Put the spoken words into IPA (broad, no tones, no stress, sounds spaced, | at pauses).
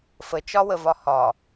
f ə t͡ʃ ɒ w ə v ɒ h ɒ